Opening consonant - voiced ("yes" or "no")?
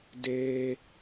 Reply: yes